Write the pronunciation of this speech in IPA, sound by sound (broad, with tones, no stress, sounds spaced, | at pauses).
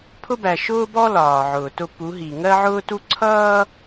pʰ ʊ˦ b æ˨ ʃ ʊː˦ b ɔ˦ l ɒː˨ ʕ ʊː˨ t ʊ˦ p u˨˦ ɦ i˨ ŋ ɜ˦ ʕ ʊː˦ t u˦ ǀʰ ʌː˦